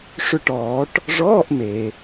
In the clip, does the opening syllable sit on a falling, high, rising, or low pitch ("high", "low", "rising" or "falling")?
falling